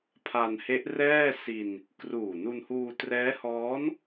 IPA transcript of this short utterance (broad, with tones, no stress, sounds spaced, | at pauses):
pʰ a˧ n h e˦˥ ʔ r ɛː˥˩ s i˧ n | k r uː˨˩ n u˧ n h uː˧ t r ɛː˦˥ h ɔː˦˥ n